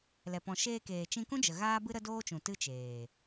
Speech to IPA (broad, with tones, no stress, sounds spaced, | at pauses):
l ɛ˨ p ɔ̃˨ ʃ eː˧ k eː˨ t͡ʃ ĩ˧ k ũ˦ d͡ʒ ə˨ ɣ aː˦ b ɨ˦ ɾ ə˦ d oː˦ t͡ʃ ũ˨ t ɨ˦ t͡ʃ eː˨